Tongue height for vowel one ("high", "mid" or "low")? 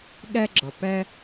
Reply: low